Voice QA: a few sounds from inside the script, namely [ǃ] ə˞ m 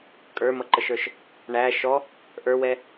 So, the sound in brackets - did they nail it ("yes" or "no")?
no